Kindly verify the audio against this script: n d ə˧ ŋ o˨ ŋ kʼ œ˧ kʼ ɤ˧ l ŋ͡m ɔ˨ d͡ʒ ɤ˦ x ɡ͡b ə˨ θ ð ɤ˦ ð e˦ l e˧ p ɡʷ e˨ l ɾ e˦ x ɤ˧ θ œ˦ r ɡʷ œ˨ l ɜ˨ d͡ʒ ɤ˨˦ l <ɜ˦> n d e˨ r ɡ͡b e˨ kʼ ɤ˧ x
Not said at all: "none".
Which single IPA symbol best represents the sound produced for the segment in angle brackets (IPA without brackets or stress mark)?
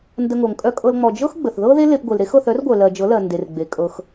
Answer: ɜ˨